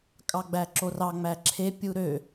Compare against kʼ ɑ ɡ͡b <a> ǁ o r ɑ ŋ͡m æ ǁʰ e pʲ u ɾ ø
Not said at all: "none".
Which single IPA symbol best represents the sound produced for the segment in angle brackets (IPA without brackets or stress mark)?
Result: æ